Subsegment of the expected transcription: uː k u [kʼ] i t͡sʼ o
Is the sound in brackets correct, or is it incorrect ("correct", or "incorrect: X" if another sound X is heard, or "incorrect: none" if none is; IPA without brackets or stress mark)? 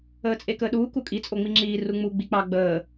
correct